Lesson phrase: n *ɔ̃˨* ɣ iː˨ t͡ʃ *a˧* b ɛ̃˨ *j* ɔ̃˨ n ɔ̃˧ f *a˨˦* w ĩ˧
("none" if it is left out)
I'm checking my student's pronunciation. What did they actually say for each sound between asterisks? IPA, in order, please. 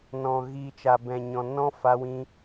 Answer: ɔ̃˨, a˨, ɲ, a˧

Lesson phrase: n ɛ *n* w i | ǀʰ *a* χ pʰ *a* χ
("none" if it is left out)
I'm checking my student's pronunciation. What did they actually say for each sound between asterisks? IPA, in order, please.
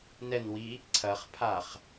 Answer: n, ɐ, a

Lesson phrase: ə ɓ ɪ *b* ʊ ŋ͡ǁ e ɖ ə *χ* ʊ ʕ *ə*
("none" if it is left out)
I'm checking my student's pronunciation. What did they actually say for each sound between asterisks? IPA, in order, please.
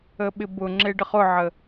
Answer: b, χ, ə

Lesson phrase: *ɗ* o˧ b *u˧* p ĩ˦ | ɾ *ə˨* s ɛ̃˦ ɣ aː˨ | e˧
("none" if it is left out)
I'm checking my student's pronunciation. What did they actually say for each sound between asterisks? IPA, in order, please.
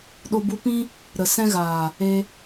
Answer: ɗ, u˧, ə˨

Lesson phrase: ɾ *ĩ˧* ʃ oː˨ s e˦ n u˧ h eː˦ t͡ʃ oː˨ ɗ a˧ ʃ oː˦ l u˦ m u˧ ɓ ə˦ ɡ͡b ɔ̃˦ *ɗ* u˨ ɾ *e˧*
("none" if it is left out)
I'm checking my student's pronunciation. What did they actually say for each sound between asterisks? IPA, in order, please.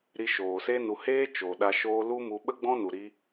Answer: i˧, n, i˧

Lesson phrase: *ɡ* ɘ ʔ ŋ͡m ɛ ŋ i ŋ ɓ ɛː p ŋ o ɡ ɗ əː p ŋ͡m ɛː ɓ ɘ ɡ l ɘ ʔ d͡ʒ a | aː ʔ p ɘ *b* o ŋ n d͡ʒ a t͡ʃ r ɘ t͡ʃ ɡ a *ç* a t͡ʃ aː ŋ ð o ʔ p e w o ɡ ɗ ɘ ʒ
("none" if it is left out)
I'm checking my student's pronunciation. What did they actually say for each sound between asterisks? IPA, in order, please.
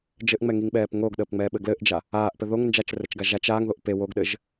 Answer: d͡ʒ, ð, ʒ

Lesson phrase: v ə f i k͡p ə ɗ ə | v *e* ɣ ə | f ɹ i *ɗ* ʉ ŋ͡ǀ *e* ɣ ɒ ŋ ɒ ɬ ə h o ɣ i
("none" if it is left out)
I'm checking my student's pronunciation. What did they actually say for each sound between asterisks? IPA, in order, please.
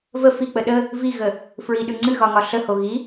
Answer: i, ɗ, ɨ

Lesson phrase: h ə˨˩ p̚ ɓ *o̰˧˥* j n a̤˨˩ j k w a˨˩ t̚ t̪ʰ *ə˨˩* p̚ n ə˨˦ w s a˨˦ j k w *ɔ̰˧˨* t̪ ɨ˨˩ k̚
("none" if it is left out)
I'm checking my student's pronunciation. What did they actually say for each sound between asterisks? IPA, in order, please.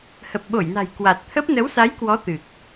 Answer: o˧˩, ə˦˥, ɔ˨˦

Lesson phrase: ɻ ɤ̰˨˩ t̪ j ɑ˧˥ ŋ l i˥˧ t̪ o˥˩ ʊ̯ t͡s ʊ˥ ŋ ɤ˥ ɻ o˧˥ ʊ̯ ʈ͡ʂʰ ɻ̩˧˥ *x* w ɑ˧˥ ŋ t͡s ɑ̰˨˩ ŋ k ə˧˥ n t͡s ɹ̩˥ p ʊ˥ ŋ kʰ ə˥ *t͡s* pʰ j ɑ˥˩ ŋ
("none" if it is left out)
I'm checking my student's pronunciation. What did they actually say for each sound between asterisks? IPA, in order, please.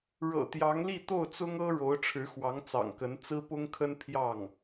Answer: x, n

